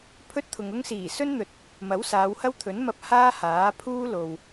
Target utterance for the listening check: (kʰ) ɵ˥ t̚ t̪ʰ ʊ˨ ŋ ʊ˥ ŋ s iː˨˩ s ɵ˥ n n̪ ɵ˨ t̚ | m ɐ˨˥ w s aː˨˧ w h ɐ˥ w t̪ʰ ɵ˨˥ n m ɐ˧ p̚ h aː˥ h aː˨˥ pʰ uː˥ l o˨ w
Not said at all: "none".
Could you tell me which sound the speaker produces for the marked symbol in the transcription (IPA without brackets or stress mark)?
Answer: pʰ